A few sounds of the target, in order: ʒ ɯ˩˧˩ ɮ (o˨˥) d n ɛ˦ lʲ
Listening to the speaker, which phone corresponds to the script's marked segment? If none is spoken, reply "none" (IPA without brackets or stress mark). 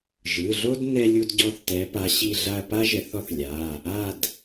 o˦